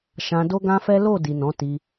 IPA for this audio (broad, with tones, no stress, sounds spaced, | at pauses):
ʃ ã˧ d o˦ ɡ ã˦ f ɛ˦ l o˦˨ d i˨ n ɔ̃˨˦ t i˧